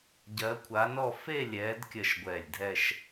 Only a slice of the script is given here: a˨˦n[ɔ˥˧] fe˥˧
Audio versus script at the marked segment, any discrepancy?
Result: no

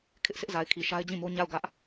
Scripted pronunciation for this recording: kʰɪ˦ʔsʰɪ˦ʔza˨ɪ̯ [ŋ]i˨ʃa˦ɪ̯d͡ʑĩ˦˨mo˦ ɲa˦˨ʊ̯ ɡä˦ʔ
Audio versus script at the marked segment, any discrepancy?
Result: yes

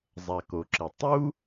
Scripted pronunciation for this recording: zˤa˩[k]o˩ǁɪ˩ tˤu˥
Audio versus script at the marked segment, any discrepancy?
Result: no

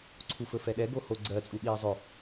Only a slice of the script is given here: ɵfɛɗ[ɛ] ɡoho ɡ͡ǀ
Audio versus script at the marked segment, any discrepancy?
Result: no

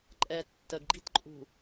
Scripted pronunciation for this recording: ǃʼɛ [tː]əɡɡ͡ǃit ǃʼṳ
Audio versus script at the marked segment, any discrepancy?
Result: no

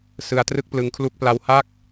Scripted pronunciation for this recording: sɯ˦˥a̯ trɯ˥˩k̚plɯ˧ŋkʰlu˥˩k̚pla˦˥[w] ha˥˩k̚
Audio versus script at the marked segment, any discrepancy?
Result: no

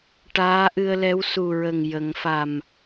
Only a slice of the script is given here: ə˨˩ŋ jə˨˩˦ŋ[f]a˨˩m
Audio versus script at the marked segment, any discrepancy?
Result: no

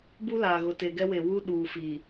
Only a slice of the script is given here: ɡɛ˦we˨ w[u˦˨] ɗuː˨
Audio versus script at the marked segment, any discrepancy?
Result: yes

